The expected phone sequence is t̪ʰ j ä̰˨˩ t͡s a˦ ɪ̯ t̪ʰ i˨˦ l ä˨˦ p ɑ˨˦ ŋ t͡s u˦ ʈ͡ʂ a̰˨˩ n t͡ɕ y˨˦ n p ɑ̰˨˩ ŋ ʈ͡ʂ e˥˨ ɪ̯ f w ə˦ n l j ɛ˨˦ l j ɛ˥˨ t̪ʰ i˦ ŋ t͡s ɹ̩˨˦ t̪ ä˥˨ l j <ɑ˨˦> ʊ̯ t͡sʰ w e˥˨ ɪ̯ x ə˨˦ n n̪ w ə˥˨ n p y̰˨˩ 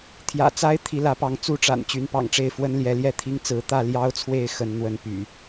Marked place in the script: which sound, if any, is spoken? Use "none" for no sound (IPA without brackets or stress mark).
ɑ˦